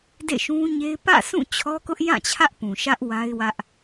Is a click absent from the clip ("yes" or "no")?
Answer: yes